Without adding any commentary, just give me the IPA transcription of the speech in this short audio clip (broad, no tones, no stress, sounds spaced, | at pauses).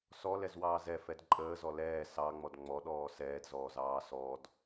s ɔ l ɛ z w ɑː z ɛ f ɛ d ǃʼ əː z ɔ l ɛː s ɑ ŋ͡m ɔ d ŋ͡m ɔ ɗ ɔː s ɛː d z ɔː z ɑː s ɔ d